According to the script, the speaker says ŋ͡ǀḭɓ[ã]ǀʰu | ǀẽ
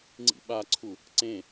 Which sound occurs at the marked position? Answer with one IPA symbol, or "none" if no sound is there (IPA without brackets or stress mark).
a